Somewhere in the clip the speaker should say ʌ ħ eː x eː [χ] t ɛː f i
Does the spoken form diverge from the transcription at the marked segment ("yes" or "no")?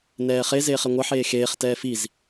no